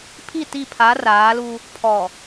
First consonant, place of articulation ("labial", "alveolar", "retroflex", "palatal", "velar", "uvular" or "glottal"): labial